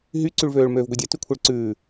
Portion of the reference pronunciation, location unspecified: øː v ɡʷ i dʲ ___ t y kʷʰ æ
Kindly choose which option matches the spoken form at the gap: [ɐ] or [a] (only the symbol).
a